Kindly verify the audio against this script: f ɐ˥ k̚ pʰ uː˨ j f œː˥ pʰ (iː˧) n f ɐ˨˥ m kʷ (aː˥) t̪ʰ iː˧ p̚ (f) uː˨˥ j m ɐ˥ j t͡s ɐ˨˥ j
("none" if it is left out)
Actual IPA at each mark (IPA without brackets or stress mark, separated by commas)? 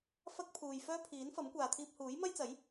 iː˨˥, aː˨, h